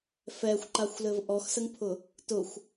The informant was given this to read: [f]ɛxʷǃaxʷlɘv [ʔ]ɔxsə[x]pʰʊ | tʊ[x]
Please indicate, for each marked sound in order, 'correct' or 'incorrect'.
correct, correct, incorrect: ŋ, incorrect: xʷ

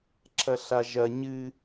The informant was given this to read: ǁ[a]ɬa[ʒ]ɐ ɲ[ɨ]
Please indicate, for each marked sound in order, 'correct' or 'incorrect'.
incorrect: ɐ, correct, correct

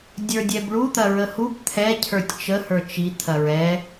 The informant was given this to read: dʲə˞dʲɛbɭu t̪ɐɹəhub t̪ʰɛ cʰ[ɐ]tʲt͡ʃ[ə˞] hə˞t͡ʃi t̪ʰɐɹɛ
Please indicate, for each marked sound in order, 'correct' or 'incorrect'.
incorrect: ə˞, incorrect: ə

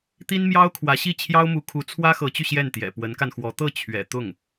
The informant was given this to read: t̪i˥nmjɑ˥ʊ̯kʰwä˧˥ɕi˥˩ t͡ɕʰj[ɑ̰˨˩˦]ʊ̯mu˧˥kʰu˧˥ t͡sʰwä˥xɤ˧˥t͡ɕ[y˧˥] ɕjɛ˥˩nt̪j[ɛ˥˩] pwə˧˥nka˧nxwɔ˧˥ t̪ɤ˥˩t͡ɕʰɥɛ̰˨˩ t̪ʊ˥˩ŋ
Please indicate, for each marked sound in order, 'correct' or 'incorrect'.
incorrect: ɑ˥, incorrect: y˧, incorrect: ɛ̰˨˩

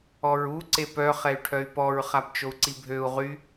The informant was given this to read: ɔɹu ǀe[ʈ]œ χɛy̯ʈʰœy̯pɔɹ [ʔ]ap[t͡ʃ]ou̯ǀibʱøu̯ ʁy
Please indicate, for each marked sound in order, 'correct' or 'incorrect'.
incorrect: p, incorrect: χ, correct

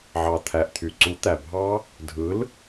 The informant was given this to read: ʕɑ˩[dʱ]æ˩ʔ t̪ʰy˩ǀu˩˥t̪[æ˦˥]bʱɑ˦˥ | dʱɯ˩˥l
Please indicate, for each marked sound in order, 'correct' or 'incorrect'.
incorrect: t̪ʰ, incorrect: æ˩

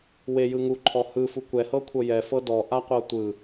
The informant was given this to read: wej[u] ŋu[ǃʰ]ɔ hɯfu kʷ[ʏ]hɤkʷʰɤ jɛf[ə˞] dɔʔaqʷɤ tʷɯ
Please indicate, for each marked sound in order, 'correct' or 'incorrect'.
incorrect: ɯ, correct, incorrect: ɛ, incorrect: ɤ

